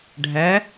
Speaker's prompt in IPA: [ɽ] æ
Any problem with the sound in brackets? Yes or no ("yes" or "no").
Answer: yes